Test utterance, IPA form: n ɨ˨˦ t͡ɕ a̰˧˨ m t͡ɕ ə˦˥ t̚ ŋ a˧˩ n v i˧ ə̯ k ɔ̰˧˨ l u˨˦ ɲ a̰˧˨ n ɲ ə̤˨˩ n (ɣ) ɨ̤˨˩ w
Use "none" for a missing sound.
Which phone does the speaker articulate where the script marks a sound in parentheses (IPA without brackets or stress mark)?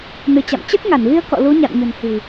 h